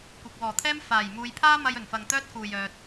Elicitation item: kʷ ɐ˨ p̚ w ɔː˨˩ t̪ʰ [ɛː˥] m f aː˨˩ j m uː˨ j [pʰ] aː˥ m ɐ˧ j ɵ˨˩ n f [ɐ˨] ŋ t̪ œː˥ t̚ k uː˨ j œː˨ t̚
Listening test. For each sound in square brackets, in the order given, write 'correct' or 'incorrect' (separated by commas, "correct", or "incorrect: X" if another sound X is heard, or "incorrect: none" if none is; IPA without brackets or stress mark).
correct, correct, correct